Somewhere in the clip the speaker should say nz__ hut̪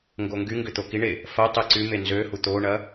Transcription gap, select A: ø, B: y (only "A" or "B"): A